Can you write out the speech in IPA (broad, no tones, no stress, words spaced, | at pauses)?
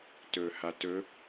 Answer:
tɵ hatɵ